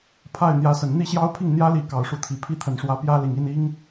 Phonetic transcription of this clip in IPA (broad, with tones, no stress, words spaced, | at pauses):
pʰa˥˩ɪ̯n̪jä˧˥sə˨˩n n̪i˥˩ɕjɑ˥ʊ̯pʰi˥˩ŋ n̪jä˥li˧˥ kɑ˨˩ʊ̯ʂu˧˥t̪ʰi˨˩ pʰi˥˩t̪ʰə˨˩nʂwä˧˥ pjä˥li˨˩ŋ i˥˩ni˥ŋ